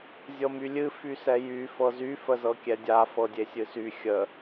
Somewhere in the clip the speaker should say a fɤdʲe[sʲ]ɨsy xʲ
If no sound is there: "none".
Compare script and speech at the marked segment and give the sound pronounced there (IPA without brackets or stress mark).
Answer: sʲ